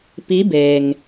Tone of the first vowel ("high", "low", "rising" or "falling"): rising